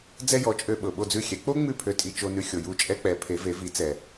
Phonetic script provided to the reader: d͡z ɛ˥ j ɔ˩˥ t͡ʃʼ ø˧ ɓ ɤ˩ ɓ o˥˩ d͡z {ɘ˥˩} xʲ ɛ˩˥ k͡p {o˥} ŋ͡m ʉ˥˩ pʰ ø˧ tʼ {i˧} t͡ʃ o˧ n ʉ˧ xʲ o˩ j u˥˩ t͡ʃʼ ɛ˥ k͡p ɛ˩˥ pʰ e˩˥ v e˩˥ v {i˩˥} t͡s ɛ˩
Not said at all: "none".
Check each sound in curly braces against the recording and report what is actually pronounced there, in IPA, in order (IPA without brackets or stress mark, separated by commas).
ʉ˥˩, o˥, i˧, i˩˥